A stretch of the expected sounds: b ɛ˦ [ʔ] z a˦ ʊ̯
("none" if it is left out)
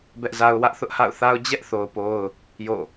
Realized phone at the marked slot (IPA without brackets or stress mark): ʔ